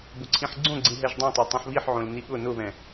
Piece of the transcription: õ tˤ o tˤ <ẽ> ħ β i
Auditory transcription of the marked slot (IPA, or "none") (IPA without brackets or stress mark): ẽ